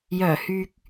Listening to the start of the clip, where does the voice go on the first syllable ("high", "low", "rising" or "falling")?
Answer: low